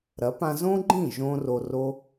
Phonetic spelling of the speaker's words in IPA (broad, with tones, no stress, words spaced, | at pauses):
ɾɐ˨˦pã˧zõ˦ɡ͡ǃĩ˦˨ ʒõ˦ro˧ ro˦